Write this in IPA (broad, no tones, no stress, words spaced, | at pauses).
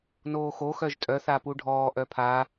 noːxo xœʒtʼœ θapuɖʱɔː ʔœpʰa